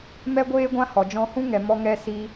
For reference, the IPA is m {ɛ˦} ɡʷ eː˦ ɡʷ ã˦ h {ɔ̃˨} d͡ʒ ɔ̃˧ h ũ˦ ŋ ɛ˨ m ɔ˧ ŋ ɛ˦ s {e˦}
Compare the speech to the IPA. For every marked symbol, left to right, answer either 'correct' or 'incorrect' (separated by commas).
correct, incorrect, incorrect